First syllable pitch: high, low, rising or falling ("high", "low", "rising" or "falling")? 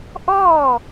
falling